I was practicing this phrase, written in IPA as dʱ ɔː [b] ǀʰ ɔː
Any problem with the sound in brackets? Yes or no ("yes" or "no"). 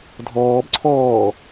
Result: no